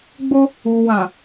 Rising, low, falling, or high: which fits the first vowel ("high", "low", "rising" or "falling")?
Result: high